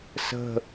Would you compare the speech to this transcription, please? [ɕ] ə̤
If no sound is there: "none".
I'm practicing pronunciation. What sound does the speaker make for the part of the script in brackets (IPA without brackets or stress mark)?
s